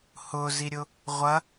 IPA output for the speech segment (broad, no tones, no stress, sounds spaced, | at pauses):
h ʊ z i ɾʲ ʊ | ʁʷ ɐ